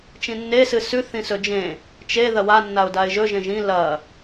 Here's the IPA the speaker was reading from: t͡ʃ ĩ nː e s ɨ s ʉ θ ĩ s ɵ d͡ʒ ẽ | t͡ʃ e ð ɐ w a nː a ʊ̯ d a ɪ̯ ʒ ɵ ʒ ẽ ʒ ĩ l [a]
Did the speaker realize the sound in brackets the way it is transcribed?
no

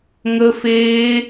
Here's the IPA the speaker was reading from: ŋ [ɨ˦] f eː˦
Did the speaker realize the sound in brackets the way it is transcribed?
no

